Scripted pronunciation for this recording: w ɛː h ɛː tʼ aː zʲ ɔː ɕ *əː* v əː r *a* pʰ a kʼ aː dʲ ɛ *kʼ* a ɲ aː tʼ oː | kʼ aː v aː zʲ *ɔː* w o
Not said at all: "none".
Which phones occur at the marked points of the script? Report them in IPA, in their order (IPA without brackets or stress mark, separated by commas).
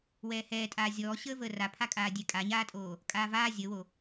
əː, a, kʼ, əː